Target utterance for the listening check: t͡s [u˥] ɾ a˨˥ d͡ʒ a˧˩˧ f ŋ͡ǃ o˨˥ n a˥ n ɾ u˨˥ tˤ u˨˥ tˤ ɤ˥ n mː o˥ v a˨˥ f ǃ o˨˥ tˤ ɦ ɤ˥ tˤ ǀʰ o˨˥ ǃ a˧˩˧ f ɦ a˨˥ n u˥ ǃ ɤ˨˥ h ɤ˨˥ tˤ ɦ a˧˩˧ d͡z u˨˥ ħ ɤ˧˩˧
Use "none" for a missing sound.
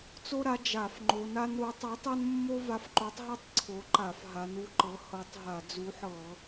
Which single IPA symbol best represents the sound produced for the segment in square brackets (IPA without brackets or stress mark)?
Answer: o˥